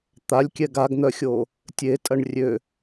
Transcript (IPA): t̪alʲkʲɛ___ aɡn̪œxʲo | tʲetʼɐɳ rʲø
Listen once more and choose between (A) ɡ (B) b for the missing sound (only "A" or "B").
A